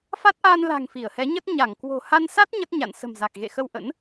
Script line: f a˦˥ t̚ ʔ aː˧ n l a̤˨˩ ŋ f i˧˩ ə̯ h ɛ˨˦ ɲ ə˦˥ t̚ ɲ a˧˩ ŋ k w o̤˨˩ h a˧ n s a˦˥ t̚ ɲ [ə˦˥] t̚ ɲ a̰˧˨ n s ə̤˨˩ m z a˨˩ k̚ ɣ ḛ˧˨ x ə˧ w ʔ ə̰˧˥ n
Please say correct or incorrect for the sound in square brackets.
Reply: correct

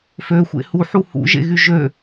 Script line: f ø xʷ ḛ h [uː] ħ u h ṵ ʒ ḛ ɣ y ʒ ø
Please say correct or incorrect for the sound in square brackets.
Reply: incorrect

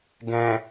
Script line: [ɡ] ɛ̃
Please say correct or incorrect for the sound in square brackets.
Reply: correct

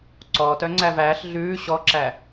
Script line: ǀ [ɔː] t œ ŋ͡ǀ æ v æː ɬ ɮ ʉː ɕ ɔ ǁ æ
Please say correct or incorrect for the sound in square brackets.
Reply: correct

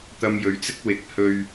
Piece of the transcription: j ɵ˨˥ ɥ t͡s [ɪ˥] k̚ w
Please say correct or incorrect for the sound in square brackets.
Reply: correct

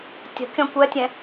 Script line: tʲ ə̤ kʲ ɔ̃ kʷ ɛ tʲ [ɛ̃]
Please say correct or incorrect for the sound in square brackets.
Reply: correct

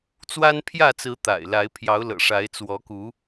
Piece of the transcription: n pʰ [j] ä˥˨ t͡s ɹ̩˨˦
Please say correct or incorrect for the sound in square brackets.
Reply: correct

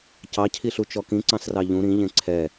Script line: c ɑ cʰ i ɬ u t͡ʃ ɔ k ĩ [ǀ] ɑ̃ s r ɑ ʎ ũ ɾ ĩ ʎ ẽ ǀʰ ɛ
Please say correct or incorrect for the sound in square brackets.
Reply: correct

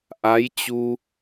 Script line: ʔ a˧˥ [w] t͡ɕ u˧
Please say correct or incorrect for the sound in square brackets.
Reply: incorrect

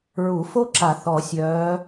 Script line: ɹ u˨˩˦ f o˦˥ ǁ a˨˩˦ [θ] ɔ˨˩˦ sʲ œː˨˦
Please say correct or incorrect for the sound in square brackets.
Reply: correct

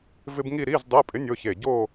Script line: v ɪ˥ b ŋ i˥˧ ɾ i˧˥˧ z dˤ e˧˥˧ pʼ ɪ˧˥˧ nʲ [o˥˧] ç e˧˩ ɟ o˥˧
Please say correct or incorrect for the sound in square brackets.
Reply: correct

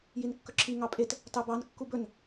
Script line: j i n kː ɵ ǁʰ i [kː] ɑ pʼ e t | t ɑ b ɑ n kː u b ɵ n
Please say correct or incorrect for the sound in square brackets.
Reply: incorrect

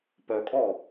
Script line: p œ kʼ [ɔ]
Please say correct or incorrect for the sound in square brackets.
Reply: correct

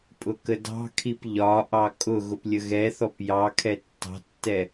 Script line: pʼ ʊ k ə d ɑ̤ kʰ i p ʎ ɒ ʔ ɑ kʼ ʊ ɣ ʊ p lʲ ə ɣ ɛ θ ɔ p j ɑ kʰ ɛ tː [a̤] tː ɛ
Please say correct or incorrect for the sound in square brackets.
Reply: incorrect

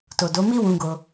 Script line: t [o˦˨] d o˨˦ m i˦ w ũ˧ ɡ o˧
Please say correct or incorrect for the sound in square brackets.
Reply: incorrect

